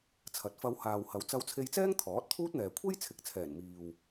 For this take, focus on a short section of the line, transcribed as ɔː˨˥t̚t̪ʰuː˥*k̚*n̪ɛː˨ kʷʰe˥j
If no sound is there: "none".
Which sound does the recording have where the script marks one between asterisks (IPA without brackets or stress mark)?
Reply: t̚